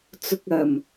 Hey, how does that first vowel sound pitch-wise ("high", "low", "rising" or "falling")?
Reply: low